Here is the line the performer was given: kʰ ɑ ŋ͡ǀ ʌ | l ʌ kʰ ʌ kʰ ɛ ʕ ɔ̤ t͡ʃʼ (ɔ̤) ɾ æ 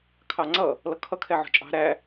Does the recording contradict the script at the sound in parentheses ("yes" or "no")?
yes